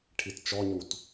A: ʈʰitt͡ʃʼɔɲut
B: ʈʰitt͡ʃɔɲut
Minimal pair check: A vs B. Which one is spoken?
B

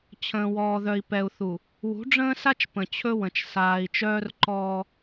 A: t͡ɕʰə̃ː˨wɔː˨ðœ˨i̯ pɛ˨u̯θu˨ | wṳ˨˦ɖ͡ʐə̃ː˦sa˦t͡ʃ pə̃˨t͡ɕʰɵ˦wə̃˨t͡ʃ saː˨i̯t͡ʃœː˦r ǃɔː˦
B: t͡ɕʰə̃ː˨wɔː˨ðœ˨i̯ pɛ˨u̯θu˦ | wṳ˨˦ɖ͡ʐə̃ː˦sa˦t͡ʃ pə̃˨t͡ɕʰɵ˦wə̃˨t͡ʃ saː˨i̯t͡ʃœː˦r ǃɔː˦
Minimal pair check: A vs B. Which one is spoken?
A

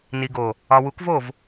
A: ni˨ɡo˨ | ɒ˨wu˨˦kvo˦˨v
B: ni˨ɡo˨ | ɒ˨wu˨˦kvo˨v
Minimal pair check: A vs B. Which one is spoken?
A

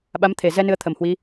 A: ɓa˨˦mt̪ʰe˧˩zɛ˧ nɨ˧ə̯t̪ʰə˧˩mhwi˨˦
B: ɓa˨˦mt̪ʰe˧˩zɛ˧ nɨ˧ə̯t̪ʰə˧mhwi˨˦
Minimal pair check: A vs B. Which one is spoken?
A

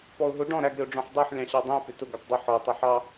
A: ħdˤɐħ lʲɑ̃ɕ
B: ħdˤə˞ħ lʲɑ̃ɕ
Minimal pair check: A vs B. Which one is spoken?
B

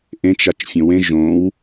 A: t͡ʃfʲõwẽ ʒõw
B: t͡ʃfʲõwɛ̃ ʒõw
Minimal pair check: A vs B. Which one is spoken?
A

